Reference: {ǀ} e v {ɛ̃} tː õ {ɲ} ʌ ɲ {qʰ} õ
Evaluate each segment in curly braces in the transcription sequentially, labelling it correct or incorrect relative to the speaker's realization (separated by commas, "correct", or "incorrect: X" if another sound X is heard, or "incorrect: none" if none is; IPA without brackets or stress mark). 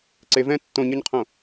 correct, correct, correct, correct